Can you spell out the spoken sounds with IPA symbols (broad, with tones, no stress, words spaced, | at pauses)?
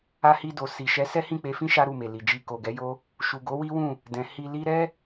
a˧hi˧ do˨ si˨ʃɛ˨˦ sɛ˦hĩ˦˨k͡pe˧fĩ˦ ʃa˦ɾu˦˨me˨ li˨d͡ʒi˧ ko˨ɡɛ˨˦jo˦ | ʃu˨ɡo˨˦wi˦wũ˦˨ | dɛ̃˨ hi˧li˦ ɾɛ˦